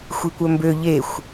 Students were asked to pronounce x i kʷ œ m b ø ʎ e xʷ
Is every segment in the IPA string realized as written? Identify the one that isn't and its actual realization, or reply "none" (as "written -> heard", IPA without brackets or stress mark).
x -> xʷ